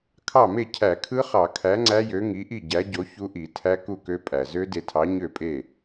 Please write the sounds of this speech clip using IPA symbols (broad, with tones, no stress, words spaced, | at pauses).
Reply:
kʰɑ˥˩me˥˩ cʰæ˧˩˧kʰɯ˦˥χɑ˧˩˧kʰæ˨˥ ŋ͡ǀæ˦˥jø˨˥ŋi˨˥ʔi˥˩ ɟæ˨˥ɟo˨˥ çu˦˥ʔi˧˩˧tʰæ˦˥ ku˥˩kø˦˥pʼæ˨˩ zø˦˥de˧tʰɑ˨˥ ɲø˥˩pʼe˥˩